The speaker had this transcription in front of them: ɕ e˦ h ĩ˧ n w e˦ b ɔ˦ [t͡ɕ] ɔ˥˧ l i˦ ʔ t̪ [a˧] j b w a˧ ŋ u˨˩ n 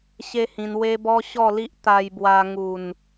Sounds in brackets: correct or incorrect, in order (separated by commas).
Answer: incorrect, correct